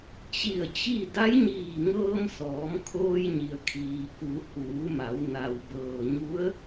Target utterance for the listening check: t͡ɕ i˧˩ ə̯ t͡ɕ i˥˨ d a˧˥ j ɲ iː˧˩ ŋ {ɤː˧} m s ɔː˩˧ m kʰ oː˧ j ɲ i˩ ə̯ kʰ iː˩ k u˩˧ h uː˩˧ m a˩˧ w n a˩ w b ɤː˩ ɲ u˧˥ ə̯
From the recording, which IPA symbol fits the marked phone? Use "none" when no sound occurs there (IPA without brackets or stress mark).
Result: ɤː˧